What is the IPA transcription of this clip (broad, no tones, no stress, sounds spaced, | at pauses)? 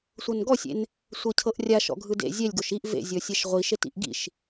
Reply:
sʷ ɤ n ɡ ɔ sʲ ḛ n | sʷ ɤ cʰ ɤ ʔ rʲ a ʃ ɔ̰ ɡʱ ɯ d ḛ zʲ ɛ lʲ ɡ o ʃ i ʔ v ḛ zʲ ɔ sʲ ɛ ʃ ʁʷ i ʃ e t ḭ ʔ ɡ ḭ ʃ